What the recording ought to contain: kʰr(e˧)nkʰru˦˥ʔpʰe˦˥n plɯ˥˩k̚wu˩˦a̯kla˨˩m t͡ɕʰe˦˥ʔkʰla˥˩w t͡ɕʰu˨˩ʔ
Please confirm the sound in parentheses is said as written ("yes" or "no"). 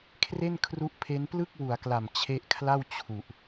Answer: no